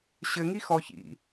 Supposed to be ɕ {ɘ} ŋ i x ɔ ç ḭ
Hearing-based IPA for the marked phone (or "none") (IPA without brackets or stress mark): ɘ